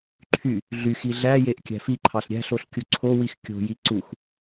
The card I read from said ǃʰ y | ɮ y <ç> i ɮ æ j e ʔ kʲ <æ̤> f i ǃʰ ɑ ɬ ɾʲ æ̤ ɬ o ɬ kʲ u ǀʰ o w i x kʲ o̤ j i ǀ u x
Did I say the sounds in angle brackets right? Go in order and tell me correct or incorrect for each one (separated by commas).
incorrect, correct